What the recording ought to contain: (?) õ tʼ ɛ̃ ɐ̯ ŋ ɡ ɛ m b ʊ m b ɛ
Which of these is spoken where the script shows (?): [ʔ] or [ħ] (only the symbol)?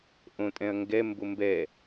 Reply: ʔ